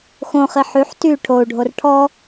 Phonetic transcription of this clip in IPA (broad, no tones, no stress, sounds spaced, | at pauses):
x õ χ i ħ y ħ t y ʈʰ o u̯ ɖʱ o r ʈʰ ɔ